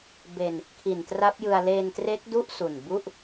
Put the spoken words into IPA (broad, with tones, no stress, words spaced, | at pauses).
be˧n | kʰi˨˩ntra˦˥p̚jɯ˧a̯ leː˧ntre˦˥k̚du˥˩ʔ su˨˩nbu˥˩ʔ